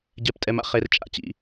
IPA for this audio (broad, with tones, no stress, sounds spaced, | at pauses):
ɟ ɛ˨ p tʼ ɛ˨ m a̰˦ χ e˨ r t͡ʃʼ a̰˦ t͡ɕ ḭ˨